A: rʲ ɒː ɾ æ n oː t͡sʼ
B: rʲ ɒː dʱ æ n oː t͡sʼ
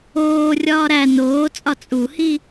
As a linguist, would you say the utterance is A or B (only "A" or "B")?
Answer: A